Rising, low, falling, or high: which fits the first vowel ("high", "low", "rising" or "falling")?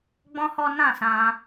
high